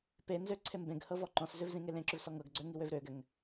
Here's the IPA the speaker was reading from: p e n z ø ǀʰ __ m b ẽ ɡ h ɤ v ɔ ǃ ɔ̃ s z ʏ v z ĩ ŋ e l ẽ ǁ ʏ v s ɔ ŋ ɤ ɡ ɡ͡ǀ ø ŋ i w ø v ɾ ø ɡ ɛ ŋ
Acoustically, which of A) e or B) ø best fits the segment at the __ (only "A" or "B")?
A